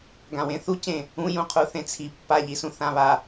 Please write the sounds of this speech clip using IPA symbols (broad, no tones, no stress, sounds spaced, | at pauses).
ɡ ã w ẽ θ u c ẽ | ũ j ũ qʰ u θ ẽ t͡sʰ i pː a ʎ i s ũ θ ã β a